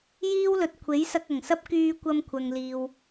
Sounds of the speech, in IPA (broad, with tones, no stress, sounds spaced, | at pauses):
j iː˥ w l ɵ˨ t̚ kʷʰ e˨˥ j s ɐ˧ k̚ ɐ˨˩ ŋ s ɐ˥ p̚ k yː˧ kʷ ɐ˧ m kʷʰ ɐ˨ ŋ l iː˨ w